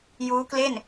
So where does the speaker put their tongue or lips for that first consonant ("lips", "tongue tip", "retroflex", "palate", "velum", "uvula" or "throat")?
palate